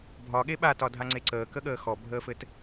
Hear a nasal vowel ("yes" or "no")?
no